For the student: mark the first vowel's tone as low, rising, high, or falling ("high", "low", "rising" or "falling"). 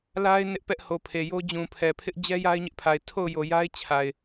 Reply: high